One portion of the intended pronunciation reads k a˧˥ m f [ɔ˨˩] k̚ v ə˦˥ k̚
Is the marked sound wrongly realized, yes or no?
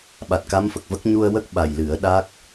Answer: yes